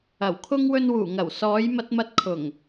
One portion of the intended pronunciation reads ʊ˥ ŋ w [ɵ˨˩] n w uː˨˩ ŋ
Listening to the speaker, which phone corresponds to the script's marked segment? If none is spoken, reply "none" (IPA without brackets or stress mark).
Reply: ɵ˧